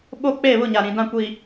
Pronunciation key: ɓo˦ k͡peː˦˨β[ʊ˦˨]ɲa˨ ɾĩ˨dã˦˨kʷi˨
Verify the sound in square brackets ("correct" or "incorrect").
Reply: correct